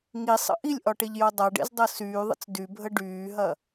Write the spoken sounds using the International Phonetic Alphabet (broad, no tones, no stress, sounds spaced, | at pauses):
ŋ i sˤ ə̰ ʔ i lʲ ʔ ɒ ʈ e ʎ j o dˤ a ɖ ḛ z dˤ ɤ s yː ðˤ ə̰ t͡s d y bʱ ə ɖ yː ɦ ɐ